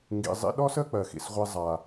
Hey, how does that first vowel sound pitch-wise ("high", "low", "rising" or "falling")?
low